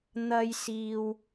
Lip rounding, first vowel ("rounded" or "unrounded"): unrounded